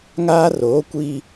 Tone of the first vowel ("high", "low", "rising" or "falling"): high